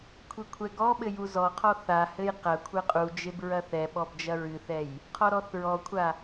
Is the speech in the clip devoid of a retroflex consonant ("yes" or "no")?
yes